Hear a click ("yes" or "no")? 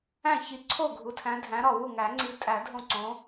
yes